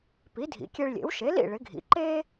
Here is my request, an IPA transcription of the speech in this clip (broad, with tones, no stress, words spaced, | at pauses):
pi˩˥dʱḭ˩˥kʲe˧ɭ lʲḛ˩˥wʃe˩˥lḭ˥˩ ɭɪ˩˥ɡʱḭ˩˥ ǃe˥